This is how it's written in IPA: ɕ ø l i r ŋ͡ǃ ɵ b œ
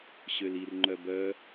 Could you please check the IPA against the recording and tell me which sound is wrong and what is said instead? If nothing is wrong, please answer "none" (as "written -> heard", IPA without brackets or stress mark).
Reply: ɵ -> œ